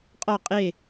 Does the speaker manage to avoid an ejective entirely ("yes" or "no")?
no